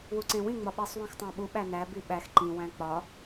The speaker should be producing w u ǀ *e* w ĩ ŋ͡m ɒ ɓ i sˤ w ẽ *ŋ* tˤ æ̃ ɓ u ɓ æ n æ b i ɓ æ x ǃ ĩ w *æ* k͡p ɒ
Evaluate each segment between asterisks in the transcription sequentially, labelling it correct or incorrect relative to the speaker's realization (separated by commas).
incorrect, incorrect, incorrect